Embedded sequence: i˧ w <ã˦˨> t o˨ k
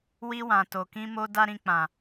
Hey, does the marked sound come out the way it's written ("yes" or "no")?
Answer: no